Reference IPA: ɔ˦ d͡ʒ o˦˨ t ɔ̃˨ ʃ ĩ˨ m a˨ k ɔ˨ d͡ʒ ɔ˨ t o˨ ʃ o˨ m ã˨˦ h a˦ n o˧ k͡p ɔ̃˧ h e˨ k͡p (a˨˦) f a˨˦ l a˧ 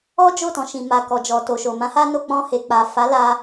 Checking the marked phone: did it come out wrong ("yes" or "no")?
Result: yes